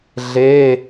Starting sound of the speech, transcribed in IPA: ɮ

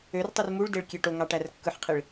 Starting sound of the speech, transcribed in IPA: ø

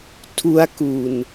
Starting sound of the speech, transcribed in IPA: tʰ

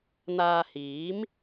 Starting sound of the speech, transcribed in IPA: n̪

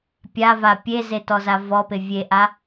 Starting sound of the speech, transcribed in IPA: pʲ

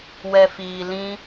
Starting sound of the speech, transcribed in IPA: w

